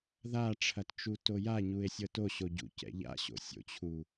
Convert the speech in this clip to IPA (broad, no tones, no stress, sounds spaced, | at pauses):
ð a ʈ͡ʂʰ ɐ t t͡ʃ u t o j a ɲ u e̯ sʲ ɤ t o ɕ o ɟ ṵ c ɛ̰ ʎ a̰ ɕ o̰ sʲ o̰ t͡ɕʰ u